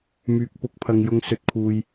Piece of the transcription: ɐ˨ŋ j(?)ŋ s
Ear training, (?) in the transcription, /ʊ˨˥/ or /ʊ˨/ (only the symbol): ʊ˨